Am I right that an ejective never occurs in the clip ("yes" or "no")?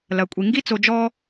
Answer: no